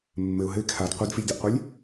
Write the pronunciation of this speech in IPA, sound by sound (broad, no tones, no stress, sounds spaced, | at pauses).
mː ɘ ʊ̯ ɦ ɘ ɪ̯ kʰ a d qʷ e d f i lʲ d ɔ ʔ qʷ e lʲ